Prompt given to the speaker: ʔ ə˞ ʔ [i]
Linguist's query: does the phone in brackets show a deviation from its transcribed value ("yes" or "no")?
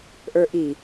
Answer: no